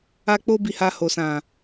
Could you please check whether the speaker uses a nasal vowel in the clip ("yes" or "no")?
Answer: yes